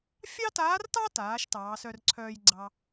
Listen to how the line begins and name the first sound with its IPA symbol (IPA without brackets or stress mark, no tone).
fʲ